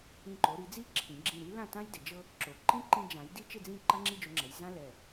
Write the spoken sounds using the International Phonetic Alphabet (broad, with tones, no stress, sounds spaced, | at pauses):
ĩ˧˩ ǃ o˩˧ ɾ i˩˧ d͡z i˥˧ ǁʰ ĩ˩˧ ɡ͡ǁ ĩ˧˩ ɾ i˥ l ã˥˧ t ã˥ j d ɪ˩˧ d͡ʒ ɤ˥ | ǁ o˩˧ ǃ ĩ˥ ǃ ĩ˧ d͡ʒ ã˩˧ j d i˥ t͡ʃ ɪ˥˧ d͡z ĩ˥˧ ǃ a˥ ŋ͡ǁ i˥˧ d͡ʒ o˧ ŋ͡ǁ ɛ˩˧ j z ã˥ l ɛ˧˩